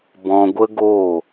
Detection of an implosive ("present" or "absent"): absent